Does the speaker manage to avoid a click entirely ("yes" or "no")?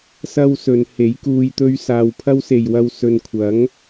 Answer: yes